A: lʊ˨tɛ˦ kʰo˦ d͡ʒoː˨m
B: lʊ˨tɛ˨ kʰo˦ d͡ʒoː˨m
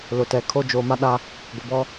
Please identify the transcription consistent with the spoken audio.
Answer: B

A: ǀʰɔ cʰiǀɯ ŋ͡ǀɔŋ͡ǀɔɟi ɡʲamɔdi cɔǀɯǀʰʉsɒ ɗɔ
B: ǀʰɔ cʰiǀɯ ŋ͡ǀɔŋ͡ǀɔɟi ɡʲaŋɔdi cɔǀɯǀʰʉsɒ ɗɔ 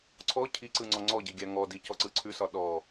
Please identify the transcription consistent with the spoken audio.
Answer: B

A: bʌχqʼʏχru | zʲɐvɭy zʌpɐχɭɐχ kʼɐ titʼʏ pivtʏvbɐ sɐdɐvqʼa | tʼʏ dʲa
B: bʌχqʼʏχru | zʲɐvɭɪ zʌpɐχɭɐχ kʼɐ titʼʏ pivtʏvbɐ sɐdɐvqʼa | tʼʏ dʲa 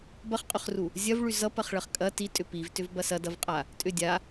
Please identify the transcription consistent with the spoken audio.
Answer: A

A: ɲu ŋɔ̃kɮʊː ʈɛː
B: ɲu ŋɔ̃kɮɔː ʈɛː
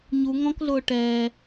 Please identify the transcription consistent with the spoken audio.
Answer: A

